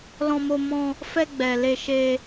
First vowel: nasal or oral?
nasal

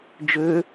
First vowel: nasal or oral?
oral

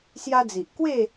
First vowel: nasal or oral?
oral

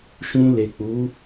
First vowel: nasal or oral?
nasal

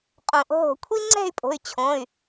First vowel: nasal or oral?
nasal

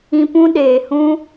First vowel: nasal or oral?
nasal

